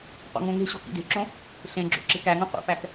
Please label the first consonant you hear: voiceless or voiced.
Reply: voiceless